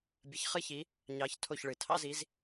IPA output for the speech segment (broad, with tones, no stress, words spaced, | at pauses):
bʲə˨˥ç χɨ˥çi˨˥ | ɲɑ˨˥ç tʰo˥˨çɭɨ˨˩ tʰɑ̰˥zi˨˥z